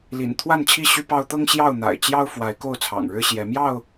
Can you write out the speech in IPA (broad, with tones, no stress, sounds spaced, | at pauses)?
l ḭ˨˩ n t̪ʰ w a˥˨ n t͡ɕʰ i˥˨ ɕ y˦ p ɑ˦ ʊ̯ t̪ ɤ˦ ŋ ɕ j ɑ˥˨ ʊ̯ n̪ a̰˨˩ ɪ̯ t͡ɕ j ɑ˦ ʊ̯ f w a˨˦ ɪ̯ k o˥˨ ʊ̯ t͡sʰ ɑ̰˨˩ ŋ ɻ ɻ̩˦ ɕ j ɛ˨˦ m j ɑ˥˨ ʊ̯